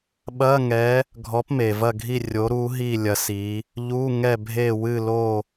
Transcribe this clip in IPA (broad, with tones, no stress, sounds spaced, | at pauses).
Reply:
ɓ ɐ˧˥˧ ŋ ɛ˨˦ | ɡʱ ɔ˨˦ p m e˩ v ɐ˦˨ ɡʱ i˦˨ rʲ o˨˦ ɾ u˨˦ ɦ i˦˨ lʲ ɐ˨˦ s i˨˦ | ʎ u˧˥˧ ŋ ɛ˦˨ bʱ e˦˨ w ɨ˦˨ l o˦˨